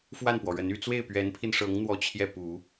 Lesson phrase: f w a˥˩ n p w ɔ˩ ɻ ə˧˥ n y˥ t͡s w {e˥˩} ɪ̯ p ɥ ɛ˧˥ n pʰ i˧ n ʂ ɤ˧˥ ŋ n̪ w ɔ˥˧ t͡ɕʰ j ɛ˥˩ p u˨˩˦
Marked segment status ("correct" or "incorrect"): correct